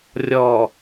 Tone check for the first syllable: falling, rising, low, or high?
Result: low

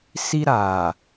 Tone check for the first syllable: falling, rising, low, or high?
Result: high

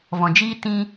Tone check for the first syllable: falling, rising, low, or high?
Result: low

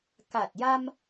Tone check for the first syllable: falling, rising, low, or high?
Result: low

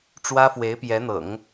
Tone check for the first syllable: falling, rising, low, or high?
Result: high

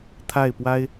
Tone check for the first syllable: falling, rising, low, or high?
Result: falling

